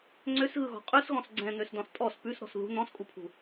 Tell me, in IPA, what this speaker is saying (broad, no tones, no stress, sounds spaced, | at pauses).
ŋ͡ǀ ø s ɣ ɯ ɣ ɔ̤ qʼ ʉ s ɣ ɔ̃ s ɡ͡ǀ ɛ̃ n̪ ø s d ɔ̃ s tʼ ɔ s p ʉ s ɾ ɔ̤ s ð ṳ n̪ ɔ̃ s kʼ u pʰ ṳ